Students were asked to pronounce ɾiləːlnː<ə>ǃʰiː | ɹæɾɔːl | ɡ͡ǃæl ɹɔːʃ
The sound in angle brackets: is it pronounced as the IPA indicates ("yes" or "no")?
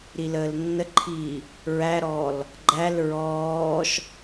yes